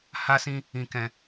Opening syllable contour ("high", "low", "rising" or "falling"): high